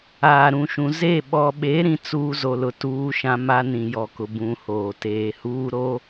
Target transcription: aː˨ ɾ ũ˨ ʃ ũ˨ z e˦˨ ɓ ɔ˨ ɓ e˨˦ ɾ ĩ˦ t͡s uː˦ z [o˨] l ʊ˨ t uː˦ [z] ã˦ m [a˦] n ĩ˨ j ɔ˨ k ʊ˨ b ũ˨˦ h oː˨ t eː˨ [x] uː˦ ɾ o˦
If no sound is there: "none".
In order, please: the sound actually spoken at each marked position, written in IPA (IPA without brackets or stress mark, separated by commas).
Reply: o˨, ʃ, a˦, h